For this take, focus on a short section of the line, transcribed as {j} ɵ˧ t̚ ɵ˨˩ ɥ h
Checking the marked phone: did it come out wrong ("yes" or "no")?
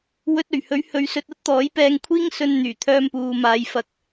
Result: yes